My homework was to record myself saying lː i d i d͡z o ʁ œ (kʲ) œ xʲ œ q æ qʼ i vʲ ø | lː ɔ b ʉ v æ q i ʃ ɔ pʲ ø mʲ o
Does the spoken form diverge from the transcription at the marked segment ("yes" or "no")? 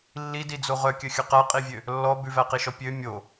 no